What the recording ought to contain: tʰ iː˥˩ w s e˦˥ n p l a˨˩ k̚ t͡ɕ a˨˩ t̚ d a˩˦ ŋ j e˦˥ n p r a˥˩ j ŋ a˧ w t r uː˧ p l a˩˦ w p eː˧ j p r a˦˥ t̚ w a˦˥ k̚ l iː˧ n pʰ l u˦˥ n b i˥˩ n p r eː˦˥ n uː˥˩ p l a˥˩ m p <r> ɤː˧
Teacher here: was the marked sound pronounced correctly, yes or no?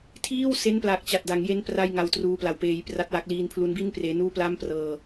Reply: yes